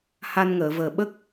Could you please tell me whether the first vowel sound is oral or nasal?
oral